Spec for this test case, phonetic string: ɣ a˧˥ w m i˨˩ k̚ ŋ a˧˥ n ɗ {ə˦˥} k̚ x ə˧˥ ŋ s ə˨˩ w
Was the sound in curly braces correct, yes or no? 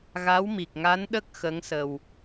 yes